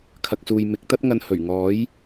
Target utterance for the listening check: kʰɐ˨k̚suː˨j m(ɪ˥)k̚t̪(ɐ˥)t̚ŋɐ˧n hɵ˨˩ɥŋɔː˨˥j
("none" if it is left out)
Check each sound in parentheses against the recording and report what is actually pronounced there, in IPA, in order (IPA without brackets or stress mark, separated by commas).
ɪ˨˥, ɐ˥